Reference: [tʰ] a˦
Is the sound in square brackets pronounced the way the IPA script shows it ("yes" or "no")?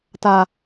no